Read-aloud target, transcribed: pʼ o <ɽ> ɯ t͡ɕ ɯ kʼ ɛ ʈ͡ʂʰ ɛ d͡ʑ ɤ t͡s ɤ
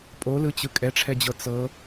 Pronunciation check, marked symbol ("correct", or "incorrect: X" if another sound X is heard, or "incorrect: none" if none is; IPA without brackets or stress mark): incorrect: l